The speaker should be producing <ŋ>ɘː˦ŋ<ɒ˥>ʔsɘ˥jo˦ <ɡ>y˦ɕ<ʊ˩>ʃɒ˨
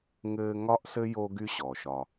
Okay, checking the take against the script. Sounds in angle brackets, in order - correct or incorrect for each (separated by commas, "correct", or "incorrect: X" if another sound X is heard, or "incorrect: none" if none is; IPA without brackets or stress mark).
correct, correct, correct, incorrect: ɔ˩